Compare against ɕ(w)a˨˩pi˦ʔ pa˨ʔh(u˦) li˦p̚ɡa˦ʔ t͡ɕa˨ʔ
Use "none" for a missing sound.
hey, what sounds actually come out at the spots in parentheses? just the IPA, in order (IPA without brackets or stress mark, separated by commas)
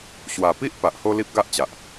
w, o˦